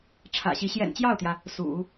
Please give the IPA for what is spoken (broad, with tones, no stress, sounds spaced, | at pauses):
ʈ͡ʂʰ ä̰˨˩ ɕ i˧˥ ɕ j ɛ̰˨˩ n t͡ɕ j ɑ˥˩ ʊ̯ t̪ j ä˩ | s ṵ˨˩˦